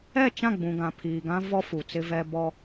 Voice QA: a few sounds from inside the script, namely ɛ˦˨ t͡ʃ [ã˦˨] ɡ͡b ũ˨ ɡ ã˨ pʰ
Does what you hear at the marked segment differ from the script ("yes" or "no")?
no